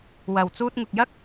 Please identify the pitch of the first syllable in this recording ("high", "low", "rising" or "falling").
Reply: low